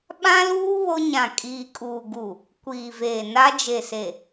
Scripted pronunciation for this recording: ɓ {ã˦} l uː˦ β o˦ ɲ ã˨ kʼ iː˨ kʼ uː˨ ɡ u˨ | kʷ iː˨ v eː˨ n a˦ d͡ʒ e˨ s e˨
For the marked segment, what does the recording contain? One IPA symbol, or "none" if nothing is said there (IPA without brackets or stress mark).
ã˦